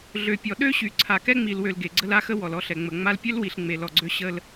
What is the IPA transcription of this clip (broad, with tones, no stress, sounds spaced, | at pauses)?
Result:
ɮ ø˨ pʲ ɔ˨ ɗ ø˦ ɕ y˨ ǀʰ a˨ k ɛ˦ ŋ͡m i˨ l w ø˨ l ɡ e˨ ɡ͡ǀ ə˦ l a˦ x ə˦ w ɔ˨ l ɔ˦ ɬ ɛ˨ ŋ͡m ə˨ ŋ͡m a˦ l pʲ ø˦ l w i˨ ɬ ŋ͡m e˨ l ɔ˨ ɡ͡ǀ ø˦ ɕ ə˦ l